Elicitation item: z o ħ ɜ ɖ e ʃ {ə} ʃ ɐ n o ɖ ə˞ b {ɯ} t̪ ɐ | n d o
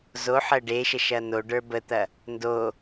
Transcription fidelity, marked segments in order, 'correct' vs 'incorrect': correct, incorrect: ə

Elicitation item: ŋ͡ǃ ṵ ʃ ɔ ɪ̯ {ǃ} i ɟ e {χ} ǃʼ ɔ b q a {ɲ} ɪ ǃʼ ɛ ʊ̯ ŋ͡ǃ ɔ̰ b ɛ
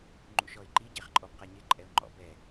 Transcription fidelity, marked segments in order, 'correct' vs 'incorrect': correct, correct, correct

